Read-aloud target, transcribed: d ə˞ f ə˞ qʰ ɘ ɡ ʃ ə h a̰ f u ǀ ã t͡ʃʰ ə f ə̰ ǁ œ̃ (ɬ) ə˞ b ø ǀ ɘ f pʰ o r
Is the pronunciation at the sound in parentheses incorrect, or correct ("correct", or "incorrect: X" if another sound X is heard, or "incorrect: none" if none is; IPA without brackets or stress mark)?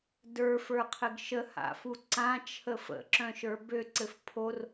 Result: incorrect: ʃ